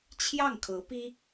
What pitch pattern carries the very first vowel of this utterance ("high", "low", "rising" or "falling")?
falling